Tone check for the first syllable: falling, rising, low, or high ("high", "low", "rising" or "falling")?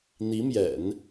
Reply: rising